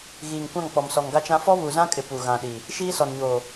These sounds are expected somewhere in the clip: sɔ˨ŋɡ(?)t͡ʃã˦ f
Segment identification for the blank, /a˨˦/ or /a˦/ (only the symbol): a˦